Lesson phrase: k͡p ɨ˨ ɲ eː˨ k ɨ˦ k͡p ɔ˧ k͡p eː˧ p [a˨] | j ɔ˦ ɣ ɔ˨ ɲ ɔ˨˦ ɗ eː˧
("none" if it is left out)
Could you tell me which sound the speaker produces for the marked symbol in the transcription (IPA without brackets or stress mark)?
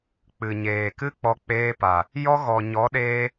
a˨